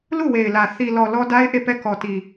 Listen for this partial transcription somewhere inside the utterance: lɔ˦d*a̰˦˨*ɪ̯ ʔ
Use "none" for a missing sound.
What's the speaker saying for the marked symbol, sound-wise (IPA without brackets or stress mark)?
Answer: a˦